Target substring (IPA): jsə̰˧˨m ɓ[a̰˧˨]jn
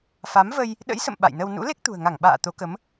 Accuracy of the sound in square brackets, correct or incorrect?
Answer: correct